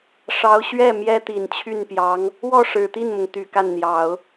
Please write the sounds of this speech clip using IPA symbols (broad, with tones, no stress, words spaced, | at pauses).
ʂɑ˧˥ʊ̯ɕɥɛ˥˩ mjɛ˥t̪i˨˩nt͡ɕʰy˥˩npjɑ˧˥ŋ | wɔ˥˩ʂɻ̩˨˩t̪i˥˩nmʊ˩ŋ t̪y˨˩ka˥˩nn̪jɑ˨˩˦ʊ̯